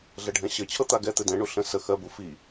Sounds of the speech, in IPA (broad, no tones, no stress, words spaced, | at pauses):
ɮɛɖʱɛ̃ɕɘt͡ɕʰɤ t̪aɡɛt̪ɘ dɛ̃ɳu ɬə̃ sə xɜbu fi